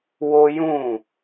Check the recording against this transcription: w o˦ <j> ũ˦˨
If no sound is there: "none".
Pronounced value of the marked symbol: j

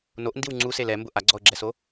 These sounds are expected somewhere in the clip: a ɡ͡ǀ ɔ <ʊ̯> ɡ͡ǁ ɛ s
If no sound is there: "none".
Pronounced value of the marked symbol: ʊ̯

